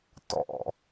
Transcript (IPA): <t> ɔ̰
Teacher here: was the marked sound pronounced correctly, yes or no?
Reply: yes